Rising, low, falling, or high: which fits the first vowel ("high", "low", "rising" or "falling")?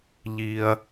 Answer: low